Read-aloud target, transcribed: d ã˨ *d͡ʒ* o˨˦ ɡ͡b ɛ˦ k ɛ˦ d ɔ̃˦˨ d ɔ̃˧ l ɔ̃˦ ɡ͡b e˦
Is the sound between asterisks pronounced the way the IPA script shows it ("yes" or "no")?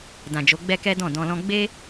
yes